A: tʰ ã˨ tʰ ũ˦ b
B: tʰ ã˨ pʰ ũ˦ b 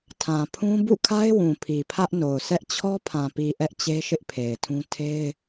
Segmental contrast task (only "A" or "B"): B